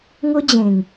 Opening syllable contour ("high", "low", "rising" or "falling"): high